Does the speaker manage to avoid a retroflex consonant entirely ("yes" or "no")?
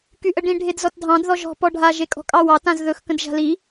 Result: no